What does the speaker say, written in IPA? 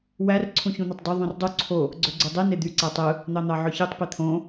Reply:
wær ǀʰũçũn̪ɑtˤdø ðˤũrdˤu ǀʰo | ɡ͡ǀøɡ͡ǀudˤi ned̪y ǀætˤɯ | n̪ɑn̪ɑʕøçitˤ pit̪ʰõ

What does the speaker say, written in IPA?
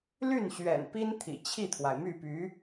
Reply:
ly˥˩nɕɥɛ̰˨˩npi˥nt̪ʰḭ˨˩ t͡ɕʰi˥˩t̪ʰwa˩ɪ̯my˥˩ py˧˥

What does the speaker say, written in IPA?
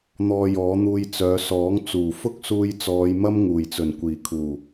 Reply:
n̪ɔː˧jɔː˨˥n̪uː˧j t͡sœː˨˧sɔː˨˥ŋ t͡suː˨˩fʊ˥k̚suː˧j t͡sɔː˨˧jmɐ˥m ŋuː˨˩jt͡sɵ˨˩n kʷiː˨˩ kʰuː˨˩

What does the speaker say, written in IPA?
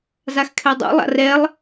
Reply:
zaxkʰɛdˤo̰ lˠa̰rɛlˠ

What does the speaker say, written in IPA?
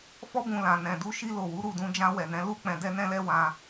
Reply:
fɔ˧bũ˨ lã˨nɛ̃˨du˧ ʃi˧lo˨wu˨˦ ɾu˦˨dũ˧d͡ʒã˧ wɛ˨nɛ̃˨˦ lu˦ k͡pɛ̃˧dɛ˦nɛ̃˦lɛ˦ wã˧

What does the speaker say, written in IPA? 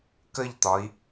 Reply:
kəʎt̪ɒi̯

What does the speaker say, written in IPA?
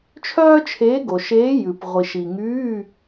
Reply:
t͡ʃʰœː˥t͡ʃʰeː˧˥ɡo˨ʃeː˧˥ jʉ˨p ʁʷi˨ʃi˨ŋyː˧˥˧

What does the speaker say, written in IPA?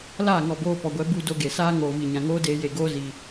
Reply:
laː˦˨ŋɔ˨boː˧ pɔ˨ɡʷɛ˨˦ bu˧ do˧ɡe˨saː˦ ŋoː˨vi˨ɲã˨ ŋoː˦deː˧je˨ ɡoː˧zi˨

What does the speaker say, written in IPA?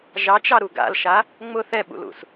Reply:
ʒɑt͡ʃɑɾu ɡa̰lʃa | ŋ͡mʊ θɛɓṵlṵs

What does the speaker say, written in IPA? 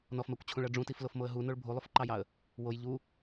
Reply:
nɔfmɜkʷt͡ɕʰũɭɜ ɖ͡ʐũtiflofmoə̯ ɦunoɭ bʱulˠufǃɑjɑə̯ | woj ʎu

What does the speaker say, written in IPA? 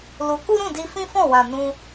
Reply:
lu˧ ku˦ɾũ˦˨di˧ fĩ˦fɔ̃˦˨wã˨ nũ˧

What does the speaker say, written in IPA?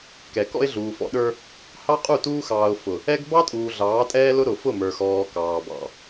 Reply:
kɛ˨kɔ̰˦ɪ̯ɮuː˨fɔ̰˦ ɗə˞˦ | hɑ˦qʼu˦˨ tuː˦xɑː˨ʊ̯ fʊ˨ | ɛ˦ɡ bɑ˦tʼuː˨ ɮɑː˨˦tʼɛː˦lʊ˦ ɾʊ˨fʊ˦˨mə˞˨xɔː˨ kɑː˨bɑ̰˨

